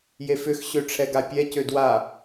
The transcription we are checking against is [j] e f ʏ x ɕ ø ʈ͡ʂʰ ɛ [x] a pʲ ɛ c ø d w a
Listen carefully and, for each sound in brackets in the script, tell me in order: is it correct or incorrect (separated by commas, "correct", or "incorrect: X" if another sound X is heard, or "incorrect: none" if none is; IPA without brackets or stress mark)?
correct, incorrect: ɡ